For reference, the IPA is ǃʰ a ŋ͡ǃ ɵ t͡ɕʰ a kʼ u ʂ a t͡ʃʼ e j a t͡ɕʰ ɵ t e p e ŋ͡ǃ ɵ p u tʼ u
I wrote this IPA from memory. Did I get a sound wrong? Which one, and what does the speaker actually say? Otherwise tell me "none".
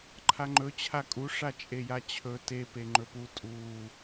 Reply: none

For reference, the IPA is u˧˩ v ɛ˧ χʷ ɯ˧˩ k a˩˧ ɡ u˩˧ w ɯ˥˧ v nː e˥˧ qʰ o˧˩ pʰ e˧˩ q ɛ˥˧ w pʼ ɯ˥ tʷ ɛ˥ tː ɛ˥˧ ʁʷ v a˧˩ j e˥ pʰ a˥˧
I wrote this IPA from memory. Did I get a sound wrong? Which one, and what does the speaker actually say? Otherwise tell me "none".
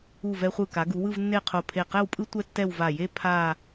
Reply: ʁʷ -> w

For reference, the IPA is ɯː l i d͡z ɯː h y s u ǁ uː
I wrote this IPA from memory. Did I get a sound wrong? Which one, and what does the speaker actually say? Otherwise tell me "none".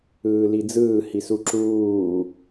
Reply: y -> i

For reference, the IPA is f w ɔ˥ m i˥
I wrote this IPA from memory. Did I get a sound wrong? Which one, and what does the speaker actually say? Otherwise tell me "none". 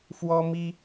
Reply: none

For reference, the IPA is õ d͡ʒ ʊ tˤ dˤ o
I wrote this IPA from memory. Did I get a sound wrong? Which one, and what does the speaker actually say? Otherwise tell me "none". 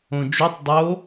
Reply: ʊ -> u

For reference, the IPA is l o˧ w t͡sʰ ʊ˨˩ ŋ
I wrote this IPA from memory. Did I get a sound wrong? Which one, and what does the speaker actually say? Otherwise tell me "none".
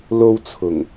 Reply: none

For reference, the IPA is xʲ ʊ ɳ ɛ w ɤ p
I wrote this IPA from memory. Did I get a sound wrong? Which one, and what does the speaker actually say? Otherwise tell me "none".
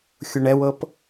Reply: none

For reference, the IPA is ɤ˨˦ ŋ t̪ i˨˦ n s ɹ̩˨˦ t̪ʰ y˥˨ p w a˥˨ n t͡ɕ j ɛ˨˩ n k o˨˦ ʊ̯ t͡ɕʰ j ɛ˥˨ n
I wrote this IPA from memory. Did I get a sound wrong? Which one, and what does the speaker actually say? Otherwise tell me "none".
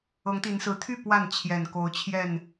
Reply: t͡ɕ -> t͡ɕʰ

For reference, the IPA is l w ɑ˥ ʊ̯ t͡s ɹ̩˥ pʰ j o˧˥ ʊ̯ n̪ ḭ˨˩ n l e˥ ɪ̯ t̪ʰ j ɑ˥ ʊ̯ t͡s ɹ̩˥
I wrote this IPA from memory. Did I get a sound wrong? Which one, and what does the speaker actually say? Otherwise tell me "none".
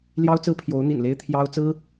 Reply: w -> j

